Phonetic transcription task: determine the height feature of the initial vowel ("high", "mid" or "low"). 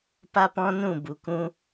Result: low